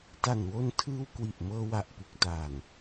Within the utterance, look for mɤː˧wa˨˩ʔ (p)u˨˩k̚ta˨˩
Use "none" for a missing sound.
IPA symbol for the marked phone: p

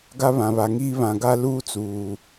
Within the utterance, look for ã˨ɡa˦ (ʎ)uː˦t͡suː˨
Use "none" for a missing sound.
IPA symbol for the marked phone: l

